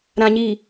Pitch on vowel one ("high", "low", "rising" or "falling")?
low